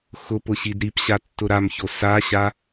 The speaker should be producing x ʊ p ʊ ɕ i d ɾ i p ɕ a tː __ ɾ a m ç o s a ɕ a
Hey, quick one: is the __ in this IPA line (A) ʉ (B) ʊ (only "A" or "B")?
B